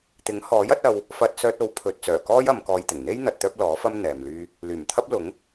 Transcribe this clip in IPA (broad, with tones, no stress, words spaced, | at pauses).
t̪ɪ˨˥ŋhɔː˨˥jɐ˨˥t̚ɐ˧w | fɐ˧t̚ sœː˧t̚o˨˥w pʰɵ˨t̚ t͡sœː˨˩kɔː˥j ɐ˨˧mkɔː˧jt̪ɪ˨˩ŋ n̪e˥jn̪ɐ˨t̚ t̪œː˥p̚lɔː˨˥fɐ˥m n̪ɛː˨mlyː˥ | lyː˨˩mt̪ʰɐ˥p̚lʊ˨˥ŋ